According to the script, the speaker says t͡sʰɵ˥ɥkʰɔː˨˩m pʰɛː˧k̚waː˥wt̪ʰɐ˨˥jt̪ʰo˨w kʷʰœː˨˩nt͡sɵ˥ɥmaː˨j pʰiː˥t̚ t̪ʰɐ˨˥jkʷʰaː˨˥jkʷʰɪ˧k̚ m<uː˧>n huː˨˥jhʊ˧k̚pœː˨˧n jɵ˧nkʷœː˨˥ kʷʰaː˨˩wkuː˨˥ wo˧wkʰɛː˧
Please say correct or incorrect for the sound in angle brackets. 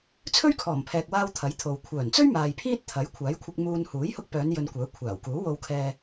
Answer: correct